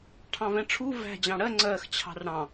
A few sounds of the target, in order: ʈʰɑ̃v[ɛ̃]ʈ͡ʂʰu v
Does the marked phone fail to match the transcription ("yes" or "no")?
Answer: no